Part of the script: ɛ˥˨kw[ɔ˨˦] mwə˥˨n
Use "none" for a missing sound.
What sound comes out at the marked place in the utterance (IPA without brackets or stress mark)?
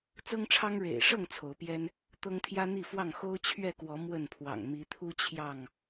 ɔ˨˦